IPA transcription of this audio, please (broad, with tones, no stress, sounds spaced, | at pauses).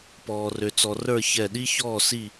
p ɔː˧ r ø˧ t͡s ɔ˧ r ə˞˥˧ ç ɛ˧˩ ɗ i˥ ç ɔː˥˧ s i˥˧